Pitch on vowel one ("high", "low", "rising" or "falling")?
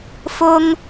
high